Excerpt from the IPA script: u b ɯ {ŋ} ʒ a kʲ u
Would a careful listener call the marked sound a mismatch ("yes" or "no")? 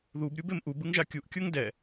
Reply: no